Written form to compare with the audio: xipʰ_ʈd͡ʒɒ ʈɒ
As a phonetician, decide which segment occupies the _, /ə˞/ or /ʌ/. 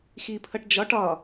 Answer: ʌ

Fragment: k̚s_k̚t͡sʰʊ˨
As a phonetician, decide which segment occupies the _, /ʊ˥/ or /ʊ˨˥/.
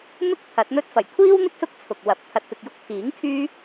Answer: ʊ˥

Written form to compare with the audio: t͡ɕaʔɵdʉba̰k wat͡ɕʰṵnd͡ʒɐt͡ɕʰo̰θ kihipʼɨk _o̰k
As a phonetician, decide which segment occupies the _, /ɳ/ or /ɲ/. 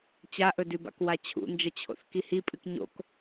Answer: ɲ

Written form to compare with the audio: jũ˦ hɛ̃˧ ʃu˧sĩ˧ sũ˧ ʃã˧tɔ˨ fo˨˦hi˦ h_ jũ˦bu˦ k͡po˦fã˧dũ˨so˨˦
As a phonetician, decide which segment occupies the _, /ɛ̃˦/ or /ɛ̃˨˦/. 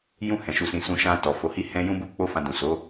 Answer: ɛ̃˦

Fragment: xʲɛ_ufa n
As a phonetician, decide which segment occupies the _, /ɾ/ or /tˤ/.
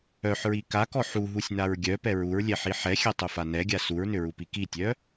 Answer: tˤ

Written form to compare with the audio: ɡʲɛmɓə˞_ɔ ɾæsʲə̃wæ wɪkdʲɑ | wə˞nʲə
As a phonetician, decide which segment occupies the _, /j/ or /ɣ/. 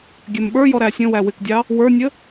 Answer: j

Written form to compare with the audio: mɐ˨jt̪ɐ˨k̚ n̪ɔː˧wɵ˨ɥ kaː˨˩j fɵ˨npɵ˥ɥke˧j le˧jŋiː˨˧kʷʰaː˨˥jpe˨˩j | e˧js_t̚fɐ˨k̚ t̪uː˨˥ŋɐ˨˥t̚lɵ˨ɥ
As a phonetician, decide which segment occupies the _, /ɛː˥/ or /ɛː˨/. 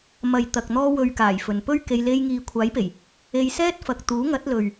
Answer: ɛː˥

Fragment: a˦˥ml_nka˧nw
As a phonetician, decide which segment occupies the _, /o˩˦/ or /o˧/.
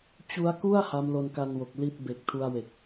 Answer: o˧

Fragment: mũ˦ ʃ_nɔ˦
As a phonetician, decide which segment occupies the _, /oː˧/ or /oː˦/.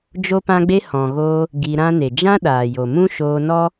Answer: oː˧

